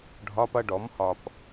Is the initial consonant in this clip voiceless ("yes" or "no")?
no